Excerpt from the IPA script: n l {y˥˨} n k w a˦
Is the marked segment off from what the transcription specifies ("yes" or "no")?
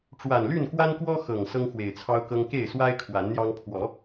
no